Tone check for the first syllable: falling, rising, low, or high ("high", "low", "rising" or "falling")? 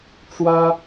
high